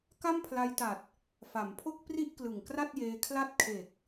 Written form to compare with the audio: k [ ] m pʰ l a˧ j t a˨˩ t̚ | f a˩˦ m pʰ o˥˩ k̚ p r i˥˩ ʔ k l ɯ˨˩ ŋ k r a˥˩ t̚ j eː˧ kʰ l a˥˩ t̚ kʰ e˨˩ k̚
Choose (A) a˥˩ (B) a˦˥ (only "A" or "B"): A